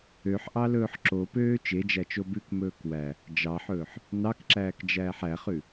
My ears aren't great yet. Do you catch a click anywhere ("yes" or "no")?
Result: yes